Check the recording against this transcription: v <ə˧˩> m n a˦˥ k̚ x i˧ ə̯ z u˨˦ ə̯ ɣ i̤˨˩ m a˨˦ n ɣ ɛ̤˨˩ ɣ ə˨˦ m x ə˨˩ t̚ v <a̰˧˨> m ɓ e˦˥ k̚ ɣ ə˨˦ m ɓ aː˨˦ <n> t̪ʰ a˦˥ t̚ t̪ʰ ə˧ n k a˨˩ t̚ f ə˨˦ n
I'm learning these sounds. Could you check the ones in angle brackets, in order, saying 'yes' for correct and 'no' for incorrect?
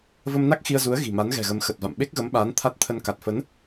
no, yes, yes

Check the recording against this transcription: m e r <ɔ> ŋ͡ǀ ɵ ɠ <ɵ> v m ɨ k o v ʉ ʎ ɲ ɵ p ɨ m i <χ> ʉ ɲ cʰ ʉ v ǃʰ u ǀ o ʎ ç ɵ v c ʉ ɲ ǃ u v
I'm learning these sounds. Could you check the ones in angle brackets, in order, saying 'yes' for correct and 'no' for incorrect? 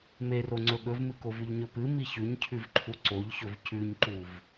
no, yes, no

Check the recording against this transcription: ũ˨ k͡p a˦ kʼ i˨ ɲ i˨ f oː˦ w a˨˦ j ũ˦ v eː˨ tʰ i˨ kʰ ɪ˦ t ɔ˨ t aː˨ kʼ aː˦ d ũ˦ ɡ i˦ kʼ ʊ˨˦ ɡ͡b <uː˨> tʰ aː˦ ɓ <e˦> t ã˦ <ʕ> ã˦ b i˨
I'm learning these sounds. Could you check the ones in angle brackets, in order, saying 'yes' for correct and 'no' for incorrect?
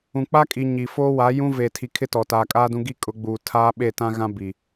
yes, no, no

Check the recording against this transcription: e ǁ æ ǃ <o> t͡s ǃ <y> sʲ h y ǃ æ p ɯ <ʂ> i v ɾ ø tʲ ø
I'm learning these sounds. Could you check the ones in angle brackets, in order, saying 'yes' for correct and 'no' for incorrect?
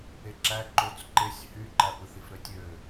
yes, no, no

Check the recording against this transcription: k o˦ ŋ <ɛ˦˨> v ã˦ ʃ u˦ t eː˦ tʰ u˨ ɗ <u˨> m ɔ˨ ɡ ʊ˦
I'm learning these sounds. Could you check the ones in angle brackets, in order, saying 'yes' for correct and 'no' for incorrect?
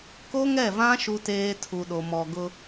yes, no

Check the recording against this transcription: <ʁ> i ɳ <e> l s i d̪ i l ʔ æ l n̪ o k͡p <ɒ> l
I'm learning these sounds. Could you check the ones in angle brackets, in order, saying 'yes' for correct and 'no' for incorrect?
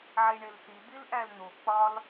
no, yes, yes

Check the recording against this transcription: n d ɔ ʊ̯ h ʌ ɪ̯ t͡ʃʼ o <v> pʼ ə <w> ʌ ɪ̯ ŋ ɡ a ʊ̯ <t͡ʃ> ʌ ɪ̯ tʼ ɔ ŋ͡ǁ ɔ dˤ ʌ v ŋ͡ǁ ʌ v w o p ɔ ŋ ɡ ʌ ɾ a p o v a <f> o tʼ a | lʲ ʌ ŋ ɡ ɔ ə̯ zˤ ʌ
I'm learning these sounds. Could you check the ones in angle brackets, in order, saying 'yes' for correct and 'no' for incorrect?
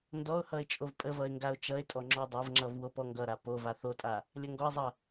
yes, no, yes, no

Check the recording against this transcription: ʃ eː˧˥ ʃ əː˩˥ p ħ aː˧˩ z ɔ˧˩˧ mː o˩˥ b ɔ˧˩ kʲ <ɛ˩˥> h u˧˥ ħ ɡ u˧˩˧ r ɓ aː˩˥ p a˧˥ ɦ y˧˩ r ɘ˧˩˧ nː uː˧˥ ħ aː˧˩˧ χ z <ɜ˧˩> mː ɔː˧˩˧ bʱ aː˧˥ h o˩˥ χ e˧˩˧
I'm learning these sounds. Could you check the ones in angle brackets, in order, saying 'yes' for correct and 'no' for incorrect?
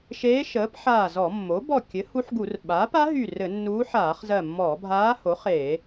no, yes

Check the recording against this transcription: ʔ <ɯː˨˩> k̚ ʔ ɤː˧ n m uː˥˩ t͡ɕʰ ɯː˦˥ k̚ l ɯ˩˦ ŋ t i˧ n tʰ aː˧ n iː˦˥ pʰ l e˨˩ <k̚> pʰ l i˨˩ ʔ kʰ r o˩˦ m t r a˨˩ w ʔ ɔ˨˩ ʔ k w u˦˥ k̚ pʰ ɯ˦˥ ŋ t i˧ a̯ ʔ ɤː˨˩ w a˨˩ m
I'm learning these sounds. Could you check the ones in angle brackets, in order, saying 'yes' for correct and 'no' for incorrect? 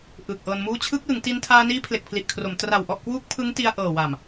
yes, yes

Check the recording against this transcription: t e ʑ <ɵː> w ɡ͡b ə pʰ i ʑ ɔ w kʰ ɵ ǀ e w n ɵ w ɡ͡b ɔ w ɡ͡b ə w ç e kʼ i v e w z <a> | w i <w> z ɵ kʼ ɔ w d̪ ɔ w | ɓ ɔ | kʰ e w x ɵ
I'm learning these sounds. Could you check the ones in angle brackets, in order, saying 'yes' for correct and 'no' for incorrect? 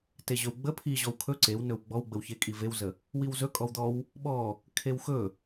no, no, yes

